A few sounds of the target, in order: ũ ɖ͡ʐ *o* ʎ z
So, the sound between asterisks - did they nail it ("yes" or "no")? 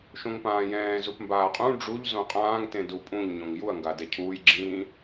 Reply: no